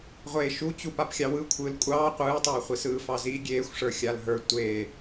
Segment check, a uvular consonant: present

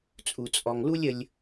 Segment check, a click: absent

